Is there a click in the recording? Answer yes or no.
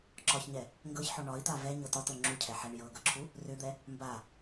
yes